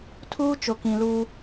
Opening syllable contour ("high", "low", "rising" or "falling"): high